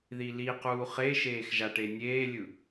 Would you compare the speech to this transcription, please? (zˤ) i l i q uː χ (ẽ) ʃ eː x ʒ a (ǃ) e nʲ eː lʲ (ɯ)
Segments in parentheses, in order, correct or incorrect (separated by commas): incorrect, incorrect, incorrect, correct